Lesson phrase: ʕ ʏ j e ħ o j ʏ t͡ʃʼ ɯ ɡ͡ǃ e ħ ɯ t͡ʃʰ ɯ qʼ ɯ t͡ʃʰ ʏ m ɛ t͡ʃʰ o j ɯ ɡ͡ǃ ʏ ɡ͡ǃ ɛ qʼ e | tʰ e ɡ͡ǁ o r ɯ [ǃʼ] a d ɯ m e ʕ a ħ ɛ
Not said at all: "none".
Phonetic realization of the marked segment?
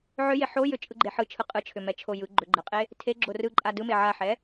ǃʼ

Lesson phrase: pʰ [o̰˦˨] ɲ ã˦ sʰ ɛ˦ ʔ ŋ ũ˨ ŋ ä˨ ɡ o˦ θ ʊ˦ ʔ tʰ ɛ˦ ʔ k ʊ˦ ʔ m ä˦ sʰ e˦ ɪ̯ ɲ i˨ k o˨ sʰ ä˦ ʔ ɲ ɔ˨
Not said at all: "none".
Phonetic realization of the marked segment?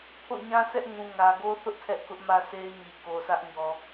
o̰˦˨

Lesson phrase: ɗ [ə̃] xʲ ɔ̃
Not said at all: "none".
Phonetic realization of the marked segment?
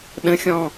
ə̃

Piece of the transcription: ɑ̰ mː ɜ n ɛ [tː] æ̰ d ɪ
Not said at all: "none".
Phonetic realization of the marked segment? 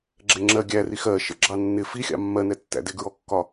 tː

